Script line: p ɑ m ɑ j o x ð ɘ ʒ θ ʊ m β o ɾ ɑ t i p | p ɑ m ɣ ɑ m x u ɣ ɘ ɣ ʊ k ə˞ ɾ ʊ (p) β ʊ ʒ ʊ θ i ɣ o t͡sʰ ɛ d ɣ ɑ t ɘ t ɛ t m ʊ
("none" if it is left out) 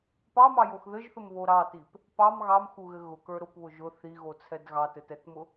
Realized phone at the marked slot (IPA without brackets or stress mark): p